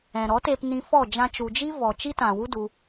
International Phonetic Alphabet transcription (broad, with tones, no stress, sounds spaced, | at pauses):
ɛ̃˨ ɾ ɔ˨˦ t e˧ p n ĩ˧ f ɔ˦˨ d͡ʒ ã˧ t͡ʃ u˨ d͡ʒ i˦ v ɔ˨ t͡ʃ i˦ t ã˨ w u˦ d u˧